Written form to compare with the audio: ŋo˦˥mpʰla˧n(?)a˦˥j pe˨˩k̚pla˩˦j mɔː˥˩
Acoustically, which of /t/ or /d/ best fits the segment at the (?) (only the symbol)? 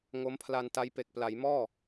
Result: t